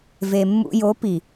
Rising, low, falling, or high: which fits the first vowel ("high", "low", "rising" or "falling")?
low